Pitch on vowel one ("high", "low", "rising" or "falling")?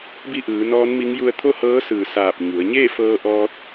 falling